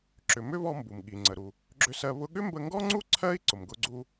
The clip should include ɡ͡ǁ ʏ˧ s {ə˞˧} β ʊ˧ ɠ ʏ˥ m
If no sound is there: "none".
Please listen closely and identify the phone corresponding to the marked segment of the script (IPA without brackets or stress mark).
ɜ˧